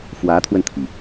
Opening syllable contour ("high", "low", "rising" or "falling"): rising